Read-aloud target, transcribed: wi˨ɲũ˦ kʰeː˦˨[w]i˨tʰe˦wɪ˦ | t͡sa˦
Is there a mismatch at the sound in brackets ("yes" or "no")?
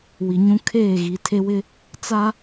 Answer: yes